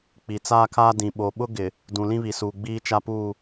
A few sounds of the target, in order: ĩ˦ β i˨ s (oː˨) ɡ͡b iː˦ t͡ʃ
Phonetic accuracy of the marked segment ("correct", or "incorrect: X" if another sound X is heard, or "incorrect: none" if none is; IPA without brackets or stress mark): incorrect: uː˨